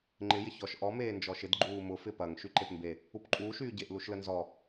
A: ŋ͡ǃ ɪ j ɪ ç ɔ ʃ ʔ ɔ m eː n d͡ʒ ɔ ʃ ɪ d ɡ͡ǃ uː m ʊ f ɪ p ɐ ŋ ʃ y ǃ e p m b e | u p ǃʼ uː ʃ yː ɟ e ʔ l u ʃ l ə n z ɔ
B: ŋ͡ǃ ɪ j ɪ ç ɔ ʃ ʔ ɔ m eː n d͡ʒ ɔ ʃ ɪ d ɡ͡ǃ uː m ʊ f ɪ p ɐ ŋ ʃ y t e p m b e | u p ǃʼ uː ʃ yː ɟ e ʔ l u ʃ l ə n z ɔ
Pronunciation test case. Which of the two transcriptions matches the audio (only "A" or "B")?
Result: A